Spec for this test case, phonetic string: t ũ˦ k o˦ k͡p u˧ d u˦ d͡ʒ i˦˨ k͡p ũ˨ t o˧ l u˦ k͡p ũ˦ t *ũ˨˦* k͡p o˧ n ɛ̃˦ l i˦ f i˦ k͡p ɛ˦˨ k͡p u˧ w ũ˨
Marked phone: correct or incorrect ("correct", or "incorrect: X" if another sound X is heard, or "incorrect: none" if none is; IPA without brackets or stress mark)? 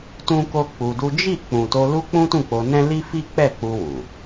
incorrect: ũ˦˨